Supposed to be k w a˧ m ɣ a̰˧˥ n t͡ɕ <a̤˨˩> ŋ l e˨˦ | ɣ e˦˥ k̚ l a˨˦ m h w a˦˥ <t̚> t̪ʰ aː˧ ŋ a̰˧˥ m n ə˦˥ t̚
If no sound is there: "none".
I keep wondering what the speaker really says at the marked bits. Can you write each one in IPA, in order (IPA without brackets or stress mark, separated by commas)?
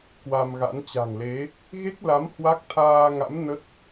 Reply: a̤˨˩, k̚